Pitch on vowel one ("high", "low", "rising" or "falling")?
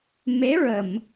rising